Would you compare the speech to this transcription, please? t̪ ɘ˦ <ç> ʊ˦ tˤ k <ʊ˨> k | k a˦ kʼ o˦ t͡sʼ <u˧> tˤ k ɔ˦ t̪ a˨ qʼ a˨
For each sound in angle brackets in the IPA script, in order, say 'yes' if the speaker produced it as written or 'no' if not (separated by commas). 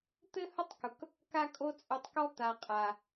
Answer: no, yes, yes